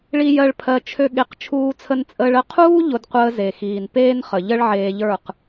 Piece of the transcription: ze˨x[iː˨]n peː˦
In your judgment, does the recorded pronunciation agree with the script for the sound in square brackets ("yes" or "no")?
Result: yes